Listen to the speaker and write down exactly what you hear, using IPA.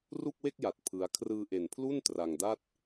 r u˥˩ k̚ w e˥˩ k̚ j a˨˩ t̚ pʰ ɯ˦˥ a̯ kʰ r ɯː˧ ʔ e˨˩ n pʰ l u˥˩ n t r a˧ ŋ d a˥˩ t̚

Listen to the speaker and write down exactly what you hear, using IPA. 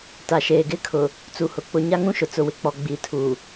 t a˨ ʃ eː˨ ɡ ɪ˦ kʰ ʊ˨ | t͡s u˨ h ʊ˨ k͡p ʊ˨ ɲ a˦ ŋ ũ˦ ʃ ʊ˨ t͡s ʊ˨ w ɪ˦ k͡p ɔ˨ ɡ͡b i˨ tʰ u˨

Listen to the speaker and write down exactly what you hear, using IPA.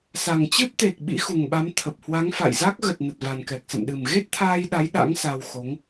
s a˨˩ ŋ t͡ɕ ɨ˦˥ p̚ t̪ e˨˩ k̚ ɓ ḭ˧˥ x u˨˩ ŋ ɓ a˨˦ m t̪ʰ ə˨˩ p̚ h w a˨˦ ŋ f a̰˧˨ j z a˦˥ k̚ ɣ ə˨˩ t̚ n ə˨˩ t̚ v a˨˩ n k ɛ˨˩ k̚ s ə̰˧˨ m ɗ ɨ˨˩ m ɣ e˦˥ t̚ t̪ʰ aː˧ j ɗ a˨˦ j ɗ a̰˧˥ ŋ s a˧ w x o˨˦ ŋ

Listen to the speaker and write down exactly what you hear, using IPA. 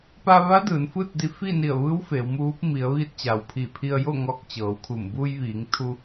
p a˧ ʋ a˧˥ d ɯː˩˧ n f ɯː˥˨ t̚ d i˧ f iː˥˨ n i˧˩ ə̯ ʋ ɯː˧˥ w f eː˩˧ w m uː˧˥ p̚ m i˩˧ ə̯ ʋ iː˧ t̚ t͡ɕ a˩ w pʰ iː˧˩ pʰ i˧ ə̯ j o˥˨ ŋ ɔː˧ k̚ t͡ɕ ɤː˩˧ w kʰ u˧˩ m b u˧ j ʋ iː˩˧ ŋ t̪ʰ u˧

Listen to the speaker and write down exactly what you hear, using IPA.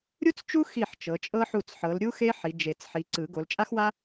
ɾʲ u˥ t͡s t͡ʃ u˥ x i˥˩ ħ t͡ʃ ɤ˨˦ t͡ʃʼ ɤ˥ ħ u˥˩ t͡s ħ ɤ˨˦ l ɾʲ u˥ x e˥ ħ i˨˦ d͡ʒ e˨˩˦ t͡s ħ i˨˦ ǀ ɯ˨˩˦ ɡ o˨˦ l t͡ʃʼ a˥ x w a˥

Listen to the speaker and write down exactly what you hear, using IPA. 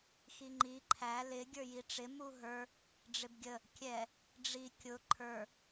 x i ŋ͡ǃ i ǃʰ æ l ɪ ɡʲ ə˞ j i ʈ͡ʂ ɪ m u ɦ ə˞ | ɖ͡ʐ ɪ b ɡʲ ə | kʲ ɛ | ɖ͡ʐ i kʲ ʊ ǃʰ ə˞

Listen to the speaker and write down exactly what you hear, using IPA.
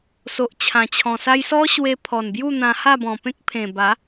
s o˨ ʔ t͡ɕʰ ã˨˩ t͡ɕʰ ɔ̃˨˩ s a˦ j s ɔ˦ ɕ w e˧ pʰ ɔ˨˩ n b j u˥˧ n̪ ã˧ h a˥˧ b ɔ̃˨˩ p ẽ˦ k̚ pʰ ẽ˨˩ b a˨˦

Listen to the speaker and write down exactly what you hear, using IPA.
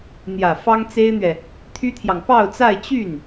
n̪ j ä˨˩ f ɑ˥ ŋ t͡s e˥ ɪ̯ n̪ ɥ ɛ˨ | t̪ʰ y˥ t̪ʰ j ɑ˨ ŋ p ɑ˥˧ ʊ̯ t͡s a˥˧ ɪ̯ t͡ɕ y˥˩ n

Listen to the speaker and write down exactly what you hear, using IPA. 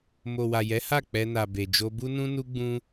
m o˨ w a˨ j ɛ˨˦ h a˦˨ k͡p ɛ˧ n a˨ b e˨ d͡ʒ o˧ b u˦ n ũ˦ n u˦ ɡ͡b ũ˦

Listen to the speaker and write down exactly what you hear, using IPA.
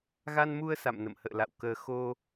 ɣ a˧ n m u˧ ə̯ s a̰˧˨ m n ə̰˧˨ m h ə̰ː˧˨ l a̰˧˨ w k əː˧ x o˧

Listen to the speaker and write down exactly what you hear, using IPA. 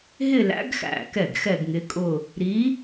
ɦ ɪ˥˧ l æ̰˧˥ ɡ x æ̰˧˩ k ɛ˥˩ ɡ x ɛ˥˧ ɡ ŋ ɪ˧˥ kʼ ʊ˥˧ | ɾ i˧˥

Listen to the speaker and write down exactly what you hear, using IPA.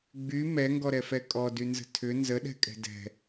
ɡ͡b y m ɛ ŋ ɡ ɔ ɾ ɛ f ɛ kʼ ɔ d y n z ə̤ tʰ ʏ n z ə ɗ ɛ̤ kʼ ɛ̤ d ɛ̤

